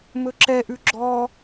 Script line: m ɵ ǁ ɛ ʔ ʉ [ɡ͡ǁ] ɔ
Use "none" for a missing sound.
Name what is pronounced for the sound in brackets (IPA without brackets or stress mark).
ɡ͡ǁ